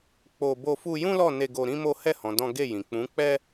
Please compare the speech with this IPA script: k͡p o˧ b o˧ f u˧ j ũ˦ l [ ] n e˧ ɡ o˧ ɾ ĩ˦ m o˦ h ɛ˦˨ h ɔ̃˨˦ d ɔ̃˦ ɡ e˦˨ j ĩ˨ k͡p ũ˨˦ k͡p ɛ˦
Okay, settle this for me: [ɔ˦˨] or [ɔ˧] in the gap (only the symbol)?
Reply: ɔ˦˨